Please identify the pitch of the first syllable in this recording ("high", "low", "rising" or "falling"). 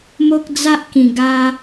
high